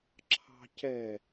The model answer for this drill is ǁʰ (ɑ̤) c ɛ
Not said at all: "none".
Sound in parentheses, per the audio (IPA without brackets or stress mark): ɑ̤